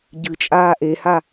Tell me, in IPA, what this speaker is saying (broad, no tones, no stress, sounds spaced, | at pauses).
ɟ ɨ t͡ʃʼ aː ʔ e h a